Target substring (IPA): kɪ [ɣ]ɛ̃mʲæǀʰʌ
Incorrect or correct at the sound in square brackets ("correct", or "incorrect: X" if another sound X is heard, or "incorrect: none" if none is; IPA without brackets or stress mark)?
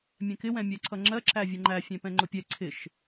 incorrect: w